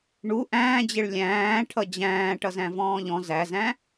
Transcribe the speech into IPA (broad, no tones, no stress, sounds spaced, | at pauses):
ɳ u ʔ æ̃ː d͡ʑ ɪ ɭ lʲ æ̃ː ʈʰ ʌ d͡ʑ æ̃ː ʈ ʌ z æ̃ v ɔ̃ː ʎ ɔ̃ z æ z æ̃